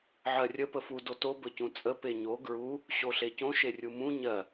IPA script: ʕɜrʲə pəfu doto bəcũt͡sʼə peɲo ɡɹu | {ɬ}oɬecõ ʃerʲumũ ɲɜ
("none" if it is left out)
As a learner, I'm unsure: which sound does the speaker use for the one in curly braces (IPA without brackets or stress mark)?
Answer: ɕ